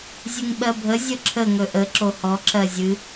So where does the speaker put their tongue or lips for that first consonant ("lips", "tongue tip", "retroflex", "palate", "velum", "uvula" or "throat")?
tongue tip